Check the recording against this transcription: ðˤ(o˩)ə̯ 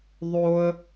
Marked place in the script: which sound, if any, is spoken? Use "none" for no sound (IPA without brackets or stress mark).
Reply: o˩